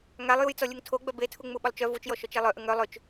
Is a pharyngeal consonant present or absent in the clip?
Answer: absent